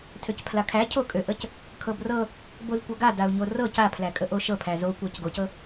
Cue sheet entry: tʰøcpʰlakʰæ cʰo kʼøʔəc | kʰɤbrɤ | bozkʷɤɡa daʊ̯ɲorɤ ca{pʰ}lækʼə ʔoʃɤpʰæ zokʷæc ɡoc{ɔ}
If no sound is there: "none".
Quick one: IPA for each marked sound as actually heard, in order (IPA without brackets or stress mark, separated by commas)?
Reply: pʰ, ɤ